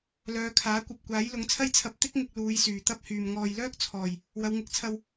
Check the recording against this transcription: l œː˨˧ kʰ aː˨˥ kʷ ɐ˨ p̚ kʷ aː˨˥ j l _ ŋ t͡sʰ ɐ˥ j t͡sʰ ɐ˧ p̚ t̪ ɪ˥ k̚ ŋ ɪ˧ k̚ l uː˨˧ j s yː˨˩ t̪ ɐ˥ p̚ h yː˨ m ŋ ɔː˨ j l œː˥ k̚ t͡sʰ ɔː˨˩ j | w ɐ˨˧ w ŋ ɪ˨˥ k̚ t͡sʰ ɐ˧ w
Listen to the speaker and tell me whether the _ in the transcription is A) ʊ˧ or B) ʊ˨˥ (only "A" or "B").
B